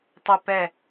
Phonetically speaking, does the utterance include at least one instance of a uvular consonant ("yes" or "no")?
no